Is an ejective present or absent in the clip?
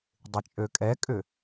present